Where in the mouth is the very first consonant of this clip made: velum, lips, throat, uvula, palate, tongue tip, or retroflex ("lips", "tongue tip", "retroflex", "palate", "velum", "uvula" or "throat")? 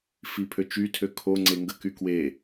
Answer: lips